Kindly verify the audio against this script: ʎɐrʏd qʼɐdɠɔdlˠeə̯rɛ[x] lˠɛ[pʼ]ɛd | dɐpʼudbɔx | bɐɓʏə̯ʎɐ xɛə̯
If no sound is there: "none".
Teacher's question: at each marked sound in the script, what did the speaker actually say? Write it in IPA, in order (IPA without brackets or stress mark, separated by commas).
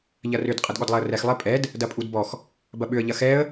x, pʼ